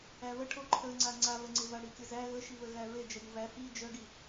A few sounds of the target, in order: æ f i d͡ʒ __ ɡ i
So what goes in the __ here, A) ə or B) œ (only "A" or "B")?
B